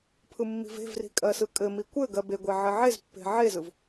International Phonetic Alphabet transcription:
pʰɯmːi̤ve̤vri̤ kʼɜsɯkʼɘmi kʷɘ ɡɜbeɡʷe ʕɘʕezpːe̤ ʕezɯv

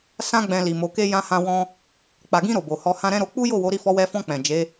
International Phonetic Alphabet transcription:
sã˦ ɡ͡bɛ̃˧li˨mo˨˦ke˦ jã˧hã˧wɔ̃˧ | k͡pa˨ɡĩ˧ ɾo˨bo˨hɔ˧hã˦ ɾɛ̃˦ɾo˧ k͡pu˦jo˦˨wo˨˦ ɾi˦˨fɔ˧wɛ˧fɔ̃˧ k͡pɛ̃˨ d͡ʒe˨˦

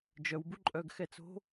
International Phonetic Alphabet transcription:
d͡ʒœwbu ǃʼœɡxɛt͡so̤

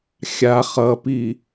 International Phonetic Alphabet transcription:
xʲa χʌpi

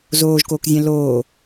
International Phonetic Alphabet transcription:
zoːʒkoːkzʲɛ̃ loː

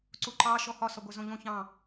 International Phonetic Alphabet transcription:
ǀuǃɑ ʃɔhɒ sɒɡʷɛzõʎõ çɑ̃

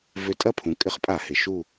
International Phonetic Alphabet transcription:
vʏ˧tʼɐ˥˨pʰũ˩˧ kʼɪ˨˥χpʼa˧˩˧hɪ˩ ʃu˥˨

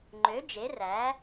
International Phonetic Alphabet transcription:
ŋ͡ǃø˩˥ d͡ʒe˩˥ræ˩˥

